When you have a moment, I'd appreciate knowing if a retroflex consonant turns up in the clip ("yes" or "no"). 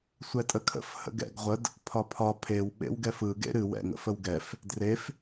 no